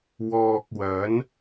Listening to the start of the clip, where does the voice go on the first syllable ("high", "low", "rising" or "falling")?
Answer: low